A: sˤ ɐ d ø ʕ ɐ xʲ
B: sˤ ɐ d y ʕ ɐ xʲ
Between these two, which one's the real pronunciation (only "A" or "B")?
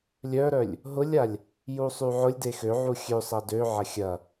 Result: A